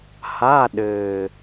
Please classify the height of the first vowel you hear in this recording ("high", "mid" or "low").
low